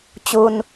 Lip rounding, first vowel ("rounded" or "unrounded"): rounded